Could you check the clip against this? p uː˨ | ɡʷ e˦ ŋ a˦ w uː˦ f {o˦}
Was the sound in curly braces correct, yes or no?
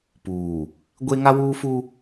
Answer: no